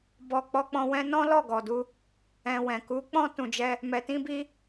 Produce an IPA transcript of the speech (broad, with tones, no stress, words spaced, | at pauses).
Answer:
bɔ˨ k͡pɔ˧k͡pɔ̃˧wɛ̃˦ nɔ̃˦lɔ˦˨ɡɔ˨du˧ | ɛ̃˧wɛ̃˨ ku˨˦k͡pɔ̃˦ tũ˧d͡ʒɛ˦ | mɛ˧tĩ˦bi˦